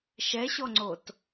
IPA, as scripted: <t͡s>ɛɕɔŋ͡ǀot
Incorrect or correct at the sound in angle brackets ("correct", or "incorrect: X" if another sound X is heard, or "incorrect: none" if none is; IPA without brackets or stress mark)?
incorrect: ʃ